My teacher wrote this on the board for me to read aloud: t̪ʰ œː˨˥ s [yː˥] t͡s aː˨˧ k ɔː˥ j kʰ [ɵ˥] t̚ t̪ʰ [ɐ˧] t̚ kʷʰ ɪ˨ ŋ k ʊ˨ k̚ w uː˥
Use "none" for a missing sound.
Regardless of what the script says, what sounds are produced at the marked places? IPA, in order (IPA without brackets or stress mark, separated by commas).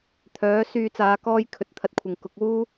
yː˧, ɵ˨˥, ɐ˧